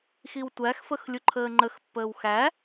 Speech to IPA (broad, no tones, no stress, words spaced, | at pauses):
xiwtʷæxfəx lʲuǃʰəːŋ͡ǃəxpːəːw xæ